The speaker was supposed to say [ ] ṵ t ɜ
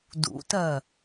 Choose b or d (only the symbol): d